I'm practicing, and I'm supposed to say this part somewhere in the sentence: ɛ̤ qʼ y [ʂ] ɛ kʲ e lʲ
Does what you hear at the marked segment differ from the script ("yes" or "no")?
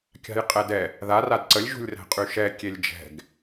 yes